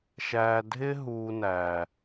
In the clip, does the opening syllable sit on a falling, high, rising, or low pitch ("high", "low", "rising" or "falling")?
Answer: low